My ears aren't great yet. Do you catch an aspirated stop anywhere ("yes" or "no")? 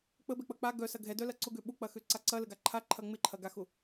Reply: yes